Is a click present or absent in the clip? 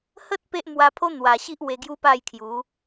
absent